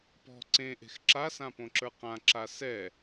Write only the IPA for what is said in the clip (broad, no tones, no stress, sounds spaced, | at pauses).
p ɔ̤ ǀ ẽ ʔ e̤ x ǁ a s ã p õ ǁ ə˞ q ã ǁ a s ɛ